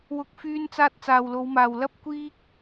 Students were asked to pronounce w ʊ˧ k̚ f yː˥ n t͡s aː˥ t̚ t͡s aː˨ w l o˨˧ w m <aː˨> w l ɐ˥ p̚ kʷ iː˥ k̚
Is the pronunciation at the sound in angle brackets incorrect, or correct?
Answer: correct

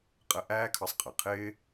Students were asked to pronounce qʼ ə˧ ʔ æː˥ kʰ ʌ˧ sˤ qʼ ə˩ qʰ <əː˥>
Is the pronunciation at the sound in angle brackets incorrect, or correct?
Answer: incorrect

